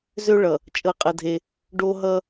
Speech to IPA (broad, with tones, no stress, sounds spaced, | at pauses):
z ø˦ ɭ ʌ˨ | t͡ʃʼ ɤ˦˨ qʼ ə˦ dʱ e˦ | ɖ o˦ ɦ ʌ˦